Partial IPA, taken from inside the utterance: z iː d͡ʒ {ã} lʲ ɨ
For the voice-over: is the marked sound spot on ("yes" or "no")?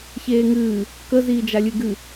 no